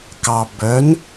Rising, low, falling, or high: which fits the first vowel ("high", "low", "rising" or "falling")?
low